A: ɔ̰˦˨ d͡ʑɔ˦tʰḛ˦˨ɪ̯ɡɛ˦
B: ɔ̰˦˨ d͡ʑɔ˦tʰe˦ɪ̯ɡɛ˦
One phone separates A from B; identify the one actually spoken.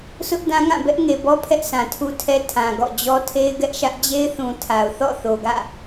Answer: B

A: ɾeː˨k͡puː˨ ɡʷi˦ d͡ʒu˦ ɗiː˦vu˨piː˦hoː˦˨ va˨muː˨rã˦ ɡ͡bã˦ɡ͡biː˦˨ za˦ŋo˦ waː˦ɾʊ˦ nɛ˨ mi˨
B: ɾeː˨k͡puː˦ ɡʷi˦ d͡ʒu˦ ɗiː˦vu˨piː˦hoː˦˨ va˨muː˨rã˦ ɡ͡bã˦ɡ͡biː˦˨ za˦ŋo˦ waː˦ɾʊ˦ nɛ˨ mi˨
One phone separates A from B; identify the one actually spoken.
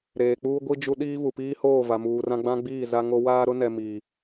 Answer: B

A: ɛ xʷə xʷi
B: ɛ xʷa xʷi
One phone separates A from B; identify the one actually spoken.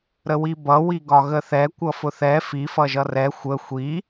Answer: A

